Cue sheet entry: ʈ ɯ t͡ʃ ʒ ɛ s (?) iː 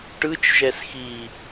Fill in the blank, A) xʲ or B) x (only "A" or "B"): B